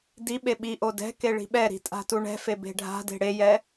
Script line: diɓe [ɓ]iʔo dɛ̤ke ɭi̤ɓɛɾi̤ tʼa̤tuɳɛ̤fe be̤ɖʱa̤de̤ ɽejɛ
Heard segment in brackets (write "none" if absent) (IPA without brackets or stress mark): ɓ